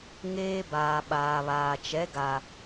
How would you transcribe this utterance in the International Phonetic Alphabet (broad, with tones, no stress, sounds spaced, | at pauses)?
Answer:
ŋ eː˦ b aː˨ ɓ aː˨ β aː˨ t͡ʃ ɛ˨˦ ɡ a˨